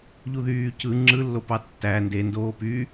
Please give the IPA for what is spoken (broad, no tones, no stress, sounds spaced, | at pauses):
ʎ u ð yː c ɯ ŋ͡ǁ ɯ lː o p ɑ tː æ n d e n d oː p y